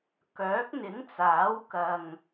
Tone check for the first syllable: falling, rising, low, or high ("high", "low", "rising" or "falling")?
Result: rising